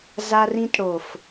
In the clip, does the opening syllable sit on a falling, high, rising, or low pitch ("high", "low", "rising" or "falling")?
high